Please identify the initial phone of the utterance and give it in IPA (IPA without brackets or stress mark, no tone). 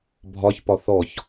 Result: bʱ